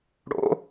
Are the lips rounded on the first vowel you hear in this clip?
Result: yes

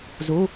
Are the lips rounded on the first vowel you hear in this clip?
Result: yes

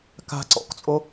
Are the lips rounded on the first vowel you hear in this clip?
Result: no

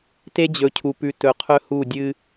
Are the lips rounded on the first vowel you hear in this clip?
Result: no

